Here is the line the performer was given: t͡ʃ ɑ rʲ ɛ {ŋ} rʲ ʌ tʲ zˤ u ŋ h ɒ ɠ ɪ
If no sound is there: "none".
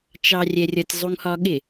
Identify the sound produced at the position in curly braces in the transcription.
none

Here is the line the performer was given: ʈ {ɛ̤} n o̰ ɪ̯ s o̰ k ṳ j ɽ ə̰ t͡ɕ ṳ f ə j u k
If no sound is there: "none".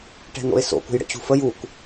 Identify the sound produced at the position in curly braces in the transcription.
ɛ̤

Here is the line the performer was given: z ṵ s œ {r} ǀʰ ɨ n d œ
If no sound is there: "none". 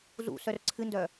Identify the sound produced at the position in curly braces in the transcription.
r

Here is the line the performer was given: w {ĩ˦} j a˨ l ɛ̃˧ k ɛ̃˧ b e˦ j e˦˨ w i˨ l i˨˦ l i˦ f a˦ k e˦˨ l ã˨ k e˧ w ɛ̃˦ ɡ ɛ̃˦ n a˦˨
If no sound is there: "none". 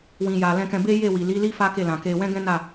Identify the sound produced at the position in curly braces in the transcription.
ĩ˨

